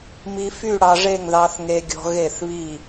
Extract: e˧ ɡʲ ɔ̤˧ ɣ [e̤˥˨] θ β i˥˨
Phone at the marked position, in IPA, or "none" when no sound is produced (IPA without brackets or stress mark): e˥˨